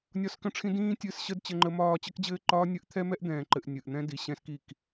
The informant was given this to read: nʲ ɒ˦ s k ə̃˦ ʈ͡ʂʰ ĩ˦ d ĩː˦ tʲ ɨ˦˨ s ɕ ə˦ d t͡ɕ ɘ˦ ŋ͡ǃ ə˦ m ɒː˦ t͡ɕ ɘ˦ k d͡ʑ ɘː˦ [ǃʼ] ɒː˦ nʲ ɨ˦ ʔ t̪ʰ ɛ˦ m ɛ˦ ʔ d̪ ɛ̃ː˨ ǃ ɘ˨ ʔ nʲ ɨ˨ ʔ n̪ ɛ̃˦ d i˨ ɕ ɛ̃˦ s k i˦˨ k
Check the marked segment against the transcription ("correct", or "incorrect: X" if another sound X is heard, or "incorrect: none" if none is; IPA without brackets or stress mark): incorrect: ǃ